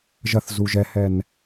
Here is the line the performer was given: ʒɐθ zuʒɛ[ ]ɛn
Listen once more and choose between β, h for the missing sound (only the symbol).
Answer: h